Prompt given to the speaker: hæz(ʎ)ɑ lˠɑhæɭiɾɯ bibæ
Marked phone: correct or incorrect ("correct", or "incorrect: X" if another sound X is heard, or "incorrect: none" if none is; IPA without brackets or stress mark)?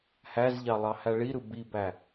correct